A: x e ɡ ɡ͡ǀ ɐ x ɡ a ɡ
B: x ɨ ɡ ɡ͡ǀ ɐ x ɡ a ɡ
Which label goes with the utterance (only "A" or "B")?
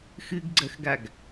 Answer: B